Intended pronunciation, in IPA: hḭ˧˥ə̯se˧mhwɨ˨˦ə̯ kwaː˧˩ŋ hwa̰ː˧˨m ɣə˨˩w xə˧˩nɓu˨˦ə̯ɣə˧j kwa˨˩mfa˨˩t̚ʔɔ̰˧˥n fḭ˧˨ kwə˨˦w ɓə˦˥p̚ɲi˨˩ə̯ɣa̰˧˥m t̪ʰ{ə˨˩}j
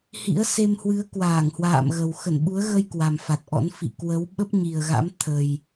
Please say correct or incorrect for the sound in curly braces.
correct